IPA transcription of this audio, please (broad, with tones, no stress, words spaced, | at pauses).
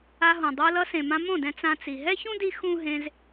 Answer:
a˧ɦõ˨ dˤo˧ lʌ˧sẽ˨ mã˧mõ˦˨dɛ̃˧ t͡sã˧t͡si˨ ɦɛ˦çũ˦di˧ xũ˦ɦẽ˧z